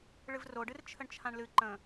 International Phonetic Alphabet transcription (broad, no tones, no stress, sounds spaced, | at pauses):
ɭ ɨ v r o ɖ ɨ r t͡ʃʰ ə ɳ t͡ʃʰ ã ɳ l ɨ ǃ ə̃